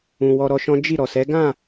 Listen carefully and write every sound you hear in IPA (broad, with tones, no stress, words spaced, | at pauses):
ũ˨wɔ˧ɾɔ˧ʃɔ̃˦ d͡ʒi˦˨ ɾɔ˨sɛ˨˦ ɡã˦˨